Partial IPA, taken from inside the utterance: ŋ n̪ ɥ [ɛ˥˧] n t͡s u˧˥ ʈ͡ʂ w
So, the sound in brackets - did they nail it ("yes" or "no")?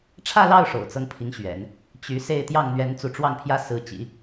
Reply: no